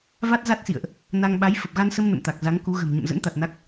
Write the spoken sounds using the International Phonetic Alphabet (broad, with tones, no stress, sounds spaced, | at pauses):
v a˦˥ t̚ z a˦˥ t̚ s ḭ˧˨ ə̯ ʔ | n a˧ ŋ ɓ a˨˦ j f ə˨˩ p̚ ɣ a˧ n s ə˧ m n ə̰˧˨ m t̪ a˨˩ k̚ z a˨˦ ŋ k u˨˦ ɣ ə̤˨˩ m ɲ ə̰˧˨ m z ə̰˧˥ n t̪ a˨˩ t̚ n a˦˥ k̚